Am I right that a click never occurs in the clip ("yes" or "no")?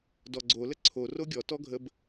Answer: no